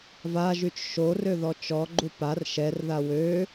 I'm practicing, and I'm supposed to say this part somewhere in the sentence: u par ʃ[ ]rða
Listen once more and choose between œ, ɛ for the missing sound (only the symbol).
ɛ